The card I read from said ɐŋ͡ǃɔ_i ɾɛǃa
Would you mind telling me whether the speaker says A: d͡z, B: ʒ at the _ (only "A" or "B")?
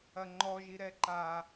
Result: B